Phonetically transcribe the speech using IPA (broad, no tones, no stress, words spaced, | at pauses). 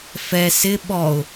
fɛ sɪ ɓɔʊ̯